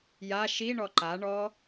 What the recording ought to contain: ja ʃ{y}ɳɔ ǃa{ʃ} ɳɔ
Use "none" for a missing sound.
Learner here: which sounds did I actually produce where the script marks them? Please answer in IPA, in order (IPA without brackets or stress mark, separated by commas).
i, none